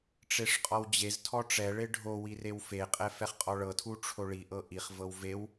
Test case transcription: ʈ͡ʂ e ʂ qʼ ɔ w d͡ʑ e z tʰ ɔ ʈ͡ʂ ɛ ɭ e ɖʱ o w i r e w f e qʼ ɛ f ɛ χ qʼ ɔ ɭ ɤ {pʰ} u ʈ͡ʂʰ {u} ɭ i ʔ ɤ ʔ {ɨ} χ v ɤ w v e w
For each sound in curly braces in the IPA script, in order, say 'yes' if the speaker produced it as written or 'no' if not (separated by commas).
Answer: no, no, no